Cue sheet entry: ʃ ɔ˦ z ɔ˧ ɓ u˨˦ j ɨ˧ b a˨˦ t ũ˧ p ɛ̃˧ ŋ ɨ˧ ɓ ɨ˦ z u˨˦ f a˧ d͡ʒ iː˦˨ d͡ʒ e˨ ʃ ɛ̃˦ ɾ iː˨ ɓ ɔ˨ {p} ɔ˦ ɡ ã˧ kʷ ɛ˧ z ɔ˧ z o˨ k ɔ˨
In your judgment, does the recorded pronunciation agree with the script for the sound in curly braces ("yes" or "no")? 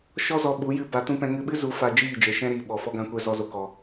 no